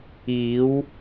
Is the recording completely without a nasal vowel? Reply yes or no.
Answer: yes